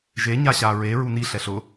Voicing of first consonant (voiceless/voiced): voiced